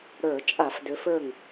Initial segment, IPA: ɽ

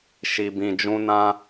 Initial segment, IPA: ʃ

